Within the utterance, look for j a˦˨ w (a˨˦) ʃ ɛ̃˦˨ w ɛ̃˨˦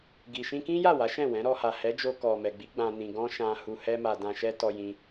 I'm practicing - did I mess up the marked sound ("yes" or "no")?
no